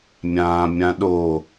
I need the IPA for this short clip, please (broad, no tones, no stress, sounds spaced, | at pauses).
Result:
mʲ ãː mʲ ã ɗ o